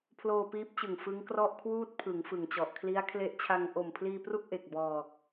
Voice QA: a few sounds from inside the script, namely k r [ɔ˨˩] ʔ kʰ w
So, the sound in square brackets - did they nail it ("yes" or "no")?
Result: no